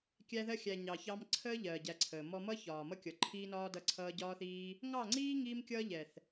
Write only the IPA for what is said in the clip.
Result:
kʲ æ˧ ð ɜ˧ xʲ æ˨ ɲ ɑ˨ ç ɑ˧ m ǀʰ əː˦ ʎ ɜː˨ ɟ æ˧ ǀʰ əː˨ m ɔ˧ m ʌ˦ ç ɒː˨ m ʌ˦ kʲ ʌ˨ ǃʰ iː˧ n ɒː˧ d ʌ˦ ǀʰ ʌː˦ ɟ ɒː˦ θ iː˦ | ŋ ɑ˦˨ ŋ͡ǀ iː˦ ŋ iː˦ m kʲ ʌː˦ ʎ ɛ˨ θ

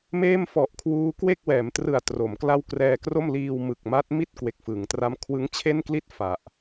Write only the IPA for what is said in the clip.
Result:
m eː˥˩ m f ɔ˨˩ ʔ kʰ w uː˦˥ k w e˥˩ k̚ w ɛː˩˦ m t r ɯ˨˩ a̯ t r o˩˦ m k l a˥˩ w k r ɛː˧ k r o˥˩ m l iː˧ w m ɯ˨˩ k̚ m a˦˥ t̚ m i˥˩ t̚ k w e˨˩ k̚ f ɯ˩˦ ŋ t r a˦˥ m kʰ w ɯ˦˥ ŋ t͡ɕʰ e˥˩ n k l i˥˩ t̚ f a˨˩ ʔ

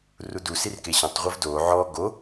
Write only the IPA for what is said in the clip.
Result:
r u d u s i r k e ɕ ɔ̃ tˤ ʁʷ ɤ v d o ʕ ɔ ɡ o

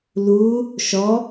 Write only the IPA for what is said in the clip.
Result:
l u | ʃ ɔ

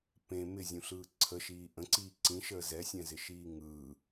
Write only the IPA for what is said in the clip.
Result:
p ẽ m ɪ zʲ ũ ɬ ɯː ǀʰ ə ʃ iː ʔ ə̃ ǀ iː ǀ ĩ ʃ əː z ɛ sʲ ɛ̃ z ɪ ʃ iː ŋ ɯː

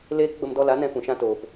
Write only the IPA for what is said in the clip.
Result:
l eː˦ k ɡ͡b ə˧ m d ɔ˧ l a˨˦ n ɛ̃˧ f ũ˨ ʃ ã˧ t oː˨ p

